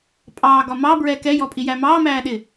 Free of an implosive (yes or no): no